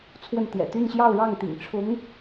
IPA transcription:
t͡sʰ w ə˥˩ n t̪ j ɛ̰˨˩ t̪ y˥˧ n ɕ j ɑ˥˧ ʊ̯ ɻ ɑ˥˩ ŋ t̪ ḭ˨˩ ŋ ʈ͡ʂʰ ʊ˧˥ ŋ

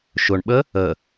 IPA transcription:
ʃ ʊ ɳ ɓ ə | ə

